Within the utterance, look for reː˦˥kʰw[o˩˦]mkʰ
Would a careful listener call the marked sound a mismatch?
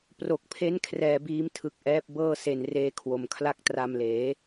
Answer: yes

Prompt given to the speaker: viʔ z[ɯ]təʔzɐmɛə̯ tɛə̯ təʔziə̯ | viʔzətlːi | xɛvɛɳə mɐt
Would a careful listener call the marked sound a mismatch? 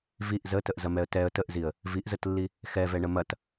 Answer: yes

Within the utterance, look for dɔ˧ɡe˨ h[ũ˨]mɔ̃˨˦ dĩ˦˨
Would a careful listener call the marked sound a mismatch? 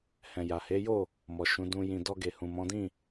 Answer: no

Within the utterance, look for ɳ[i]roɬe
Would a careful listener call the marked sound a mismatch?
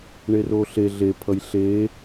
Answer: yes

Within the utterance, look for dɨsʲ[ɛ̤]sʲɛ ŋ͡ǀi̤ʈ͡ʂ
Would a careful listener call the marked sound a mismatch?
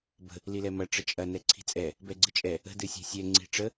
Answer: no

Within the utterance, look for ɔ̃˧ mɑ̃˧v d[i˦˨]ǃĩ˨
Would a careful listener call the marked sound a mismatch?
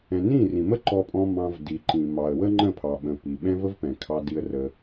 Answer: yes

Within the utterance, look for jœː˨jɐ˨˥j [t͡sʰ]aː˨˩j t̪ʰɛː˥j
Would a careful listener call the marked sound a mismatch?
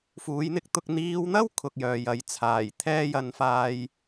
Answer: no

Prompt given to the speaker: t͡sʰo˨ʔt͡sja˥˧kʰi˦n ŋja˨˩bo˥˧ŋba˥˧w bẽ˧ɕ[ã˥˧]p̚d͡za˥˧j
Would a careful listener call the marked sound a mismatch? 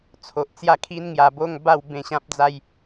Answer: yes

